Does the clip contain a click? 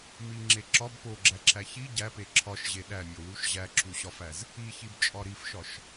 yes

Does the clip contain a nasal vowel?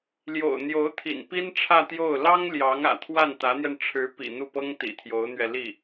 no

